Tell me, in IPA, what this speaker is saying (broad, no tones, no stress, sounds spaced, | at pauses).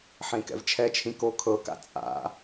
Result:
ħ ẽ k ɛ̰ v t͡ʃʰ ɛ t͡ʃʰ ĩ k o kʰ ɤ k a̰ t͡sʼ a̰